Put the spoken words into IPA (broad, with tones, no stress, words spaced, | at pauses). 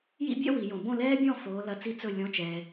jḭ˥bʲɛ̰˥ wi˨˩˦jõ˨˩˦ bõ˥˨lɛː˥bʲɔ̃˥˨ foː˨˥lɐ˧˥˧t͡si˥ t͡sɵ˥˨ lʲɔ̃˧˥˧t͡ʃɛ˨